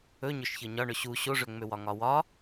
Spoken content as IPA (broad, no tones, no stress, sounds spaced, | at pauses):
ɵ ɲ ɵ ʃ ç ɤ ɲ ɒ ɳ ɵ ɕ u ɕ o ʐ ø ŋ͡m ø w ɒ ŋ ɒ w ɒ